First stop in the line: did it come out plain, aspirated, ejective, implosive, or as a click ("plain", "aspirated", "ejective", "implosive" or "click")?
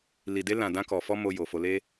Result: plain